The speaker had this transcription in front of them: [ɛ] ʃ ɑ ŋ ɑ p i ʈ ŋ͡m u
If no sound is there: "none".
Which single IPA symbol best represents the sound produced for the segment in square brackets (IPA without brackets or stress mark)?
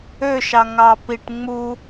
ø